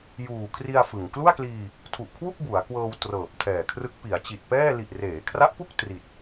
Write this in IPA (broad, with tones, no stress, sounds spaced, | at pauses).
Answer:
j uː˨˩ kʰ r i˧ a̯ f ɯ˨˩ ŋ k l u˥˩ a̯ k l iː˧ | tʰ u˨˩ ʔ kʰ w u˥˩ k̚ b u˩˦ a̯ k w ɤː˧ w t r ɤː˨˩ p̚ tʰ ɛː˨˩ kʰ r ɯ˦˥ k̚ p i˩˦ a̯ t͡ɕ i˨˩ t̚ p ɛː˥˩ l i˨˩ ʔ r eː˩˦ kʰ r a˦˥ ʔ p u˥˩ k̚ t r i˨˩ t̚